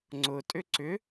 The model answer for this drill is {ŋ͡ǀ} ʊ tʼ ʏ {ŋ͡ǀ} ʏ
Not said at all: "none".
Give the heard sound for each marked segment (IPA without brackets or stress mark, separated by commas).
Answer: ŋ͡ǀ, ǀ